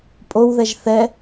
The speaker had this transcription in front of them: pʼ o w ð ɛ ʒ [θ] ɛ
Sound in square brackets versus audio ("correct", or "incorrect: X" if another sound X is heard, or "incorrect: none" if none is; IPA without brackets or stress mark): correct